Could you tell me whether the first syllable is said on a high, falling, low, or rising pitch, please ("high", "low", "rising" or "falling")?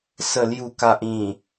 low